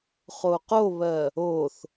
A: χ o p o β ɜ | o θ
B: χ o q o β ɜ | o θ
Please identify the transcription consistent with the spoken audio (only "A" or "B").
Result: B